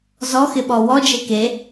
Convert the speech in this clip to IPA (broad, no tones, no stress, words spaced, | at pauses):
zɔxɪɓɔ wɔd͡ʒe ke